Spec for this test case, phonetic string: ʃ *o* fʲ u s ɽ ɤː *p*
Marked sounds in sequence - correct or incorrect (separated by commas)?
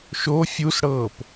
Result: correct, correct